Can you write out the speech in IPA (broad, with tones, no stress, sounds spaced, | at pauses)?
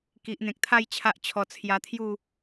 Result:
k i˨ ʔ n̪ ẽ˨ k̚ t̪ʰ a˥˧ j t͡ɕʰ a˦ ʔ t͡ɕʰ ɔ˧ t͡sʰ j a˧ t̪ʰ j u˥˧